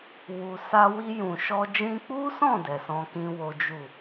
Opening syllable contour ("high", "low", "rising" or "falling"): low